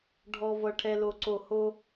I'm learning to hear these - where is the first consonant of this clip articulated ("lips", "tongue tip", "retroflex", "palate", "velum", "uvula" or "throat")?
retroflex